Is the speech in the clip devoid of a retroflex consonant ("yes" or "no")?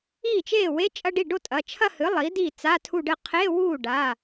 no